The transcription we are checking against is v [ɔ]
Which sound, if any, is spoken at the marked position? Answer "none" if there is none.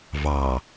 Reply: ɑ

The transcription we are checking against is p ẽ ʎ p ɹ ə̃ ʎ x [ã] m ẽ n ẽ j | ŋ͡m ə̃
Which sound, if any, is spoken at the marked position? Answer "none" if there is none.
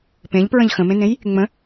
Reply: ə̃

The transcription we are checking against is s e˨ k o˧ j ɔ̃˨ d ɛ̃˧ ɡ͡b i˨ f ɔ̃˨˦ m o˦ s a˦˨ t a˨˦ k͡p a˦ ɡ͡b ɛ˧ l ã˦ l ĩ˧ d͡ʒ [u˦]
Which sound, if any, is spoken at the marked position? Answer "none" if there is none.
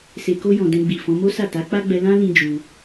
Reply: u˧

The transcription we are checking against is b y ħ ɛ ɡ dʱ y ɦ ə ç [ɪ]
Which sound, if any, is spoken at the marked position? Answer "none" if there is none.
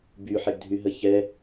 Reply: ɛ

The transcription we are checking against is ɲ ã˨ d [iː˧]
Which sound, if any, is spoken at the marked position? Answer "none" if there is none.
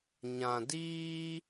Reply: iː˧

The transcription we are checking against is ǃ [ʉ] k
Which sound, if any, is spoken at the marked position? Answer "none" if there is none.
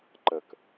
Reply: ə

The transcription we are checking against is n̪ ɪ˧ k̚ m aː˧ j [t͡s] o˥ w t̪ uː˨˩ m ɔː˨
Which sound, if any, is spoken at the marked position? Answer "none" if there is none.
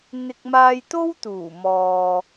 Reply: t̪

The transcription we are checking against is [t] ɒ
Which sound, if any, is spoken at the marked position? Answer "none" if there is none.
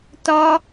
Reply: t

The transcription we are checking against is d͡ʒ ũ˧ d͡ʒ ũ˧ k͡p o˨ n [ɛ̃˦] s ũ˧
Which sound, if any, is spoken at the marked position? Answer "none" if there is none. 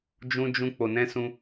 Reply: ɛ̃˧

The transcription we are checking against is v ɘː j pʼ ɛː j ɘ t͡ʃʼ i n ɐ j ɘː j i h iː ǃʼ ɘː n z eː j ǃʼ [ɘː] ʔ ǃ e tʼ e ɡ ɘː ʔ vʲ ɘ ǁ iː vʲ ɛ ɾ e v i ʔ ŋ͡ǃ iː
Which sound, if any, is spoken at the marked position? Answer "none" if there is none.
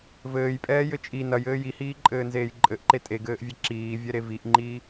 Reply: ɘ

